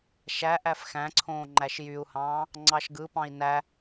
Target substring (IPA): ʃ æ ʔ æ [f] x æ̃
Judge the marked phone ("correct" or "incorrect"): correct